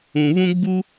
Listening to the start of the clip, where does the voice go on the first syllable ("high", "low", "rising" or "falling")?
low